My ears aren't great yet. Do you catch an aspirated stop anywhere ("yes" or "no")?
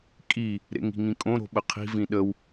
yes